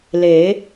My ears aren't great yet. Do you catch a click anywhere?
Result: no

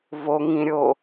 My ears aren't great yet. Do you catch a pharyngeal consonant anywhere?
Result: no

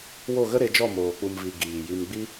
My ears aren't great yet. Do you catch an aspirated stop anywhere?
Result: no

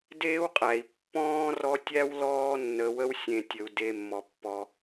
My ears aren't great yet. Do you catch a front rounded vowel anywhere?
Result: no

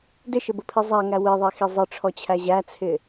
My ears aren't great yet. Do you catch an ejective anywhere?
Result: no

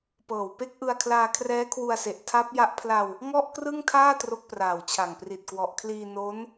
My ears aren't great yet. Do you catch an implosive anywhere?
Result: no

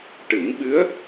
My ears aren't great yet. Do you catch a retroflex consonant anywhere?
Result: yes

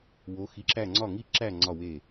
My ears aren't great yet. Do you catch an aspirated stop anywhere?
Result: no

